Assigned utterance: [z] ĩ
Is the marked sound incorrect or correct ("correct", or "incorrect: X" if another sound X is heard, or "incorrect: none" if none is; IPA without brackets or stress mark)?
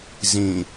correct